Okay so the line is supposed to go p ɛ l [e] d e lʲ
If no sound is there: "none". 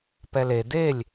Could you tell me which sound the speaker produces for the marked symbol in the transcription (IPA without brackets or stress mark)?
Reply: e